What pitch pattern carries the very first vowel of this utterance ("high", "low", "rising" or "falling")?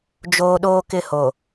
high